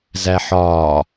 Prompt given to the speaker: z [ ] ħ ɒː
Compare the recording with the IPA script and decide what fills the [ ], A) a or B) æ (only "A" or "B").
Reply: B